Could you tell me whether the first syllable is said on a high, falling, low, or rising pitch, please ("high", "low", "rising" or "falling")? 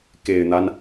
low